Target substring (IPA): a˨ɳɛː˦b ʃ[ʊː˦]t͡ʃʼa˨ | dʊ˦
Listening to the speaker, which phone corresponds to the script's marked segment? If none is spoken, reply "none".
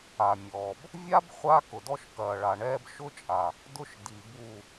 ʊ˦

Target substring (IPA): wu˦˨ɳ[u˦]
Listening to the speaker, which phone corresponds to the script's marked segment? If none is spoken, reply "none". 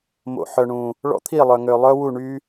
y˦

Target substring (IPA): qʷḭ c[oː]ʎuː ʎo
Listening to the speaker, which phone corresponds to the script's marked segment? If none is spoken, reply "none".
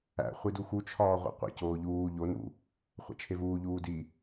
oː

